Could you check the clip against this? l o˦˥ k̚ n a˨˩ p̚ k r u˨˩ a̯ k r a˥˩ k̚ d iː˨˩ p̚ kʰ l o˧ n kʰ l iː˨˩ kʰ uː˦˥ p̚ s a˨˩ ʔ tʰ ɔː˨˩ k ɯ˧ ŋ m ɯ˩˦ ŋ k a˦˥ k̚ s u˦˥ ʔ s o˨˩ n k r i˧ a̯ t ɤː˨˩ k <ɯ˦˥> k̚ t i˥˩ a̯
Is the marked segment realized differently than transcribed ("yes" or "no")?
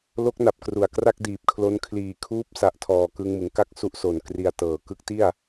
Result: no